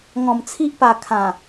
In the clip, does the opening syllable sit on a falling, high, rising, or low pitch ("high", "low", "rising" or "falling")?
low